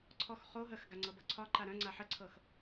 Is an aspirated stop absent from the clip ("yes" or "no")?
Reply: no